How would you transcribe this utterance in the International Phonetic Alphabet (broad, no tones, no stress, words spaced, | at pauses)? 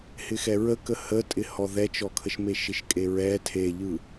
hɪxɛɹəkə hətʼɪhɔ ðɛt͡ʃɔkʰəʃ meʃɪʃkʼeɹɛ tʰeʎɯ